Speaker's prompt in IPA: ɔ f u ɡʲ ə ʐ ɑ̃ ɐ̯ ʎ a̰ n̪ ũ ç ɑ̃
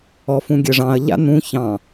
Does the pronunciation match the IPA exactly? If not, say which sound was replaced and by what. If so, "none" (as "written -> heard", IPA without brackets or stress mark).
u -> ũ